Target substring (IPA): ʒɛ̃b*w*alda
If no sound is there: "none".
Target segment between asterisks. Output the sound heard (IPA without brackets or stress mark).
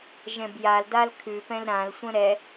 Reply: j